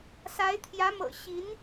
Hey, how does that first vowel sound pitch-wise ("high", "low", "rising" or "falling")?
rising